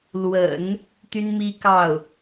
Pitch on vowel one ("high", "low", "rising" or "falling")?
low